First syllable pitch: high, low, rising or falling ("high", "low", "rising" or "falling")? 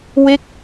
falling